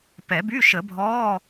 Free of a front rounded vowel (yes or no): no